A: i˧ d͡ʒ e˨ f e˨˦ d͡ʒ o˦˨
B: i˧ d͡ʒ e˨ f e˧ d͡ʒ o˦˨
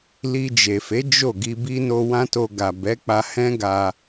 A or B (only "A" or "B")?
A